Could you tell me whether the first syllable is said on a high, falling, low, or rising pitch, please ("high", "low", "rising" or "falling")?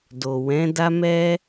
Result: low